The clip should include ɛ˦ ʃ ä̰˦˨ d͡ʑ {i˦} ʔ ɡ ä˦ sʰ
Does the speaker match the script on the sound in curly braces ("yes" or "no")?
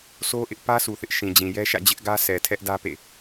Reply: no